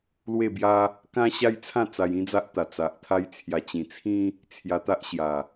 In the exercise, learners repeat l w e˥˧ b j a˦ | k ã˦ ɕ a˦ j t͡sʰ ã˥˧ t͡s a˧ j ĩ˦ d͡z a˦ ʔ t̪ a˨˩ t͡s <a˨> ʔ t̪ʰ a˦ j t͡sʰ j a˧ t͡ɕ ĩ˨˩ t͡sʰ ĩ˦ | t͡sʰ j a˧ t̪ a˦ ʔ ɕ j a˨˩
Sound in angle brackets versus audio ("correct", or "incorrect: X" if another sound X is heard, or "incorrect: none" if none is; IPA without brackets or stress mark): correct